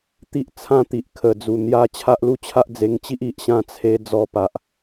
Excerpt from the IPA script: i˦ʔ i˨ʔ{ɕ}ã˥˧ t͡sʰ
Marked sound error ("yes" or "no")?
no